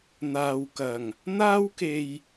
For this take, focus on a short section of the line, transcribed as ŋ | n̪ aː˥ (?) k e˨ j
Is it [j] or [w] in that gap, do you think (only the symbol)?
w